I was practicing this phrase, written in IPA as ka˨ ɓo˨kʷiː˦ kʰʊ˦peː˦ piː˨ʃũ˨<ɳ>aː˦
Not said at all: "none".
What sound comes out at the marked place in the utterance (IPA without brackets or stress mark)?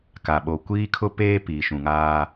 ŋ